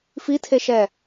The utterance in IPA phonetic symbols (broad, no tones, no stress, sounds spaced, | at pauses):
f i tʰ e ʃ ɛ